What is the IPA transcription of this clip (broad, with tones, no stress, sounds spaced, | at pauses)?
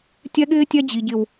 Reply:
tʲ ɛ˦ ɠ ɪː˦ tʲ ɛ˦ d͡ʑ i˨ ɟ ɪ˨ w